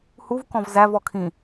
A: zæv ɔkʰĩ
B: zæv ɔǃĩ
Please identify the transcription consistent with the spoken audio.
A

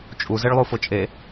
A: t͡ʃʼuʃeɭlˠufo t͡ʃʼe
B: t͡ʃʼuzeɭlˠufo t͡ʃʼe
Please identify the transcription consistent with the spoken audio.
B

